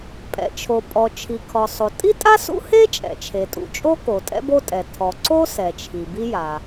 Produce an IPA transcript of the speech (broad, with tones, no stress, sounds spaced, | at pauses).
pʼ ɛ̰˩ t͡ʃʰ o˩ pʼ ɔ˩ t͡ʃʰ i˩ kʰ ɔ˩ sˤ o˩ tʼ i˥ tʼ a˥ s ṵ˥ h e˥ t͡ʃʼ ɛ̰˩ t͡ʃʰ e˩ tʼ ṵ˩ t͡ʃʼ o˥ k o˩ tʼ ɛ̰˥ b o˥ tʼ ɛ˩ tʰ ɔ˩ ǀ o˥ s ɛ˩ t͡ʃʰ i˩ b i˥ j a˩